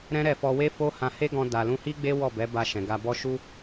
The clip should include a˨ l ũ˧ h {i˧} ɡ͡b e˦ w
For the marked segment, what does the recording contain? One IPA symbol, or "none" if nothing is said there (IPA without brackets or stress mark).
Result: i˦